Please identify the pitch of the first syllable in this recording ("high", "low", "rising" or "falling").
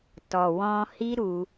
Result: low